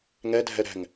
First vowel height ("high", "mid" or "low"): mid